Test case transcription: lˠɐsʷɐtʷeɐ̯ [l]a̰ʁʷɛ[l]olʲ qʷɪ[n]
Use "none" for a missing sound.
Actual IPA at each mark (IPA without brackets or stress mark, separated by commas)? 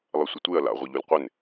l, ʎ, n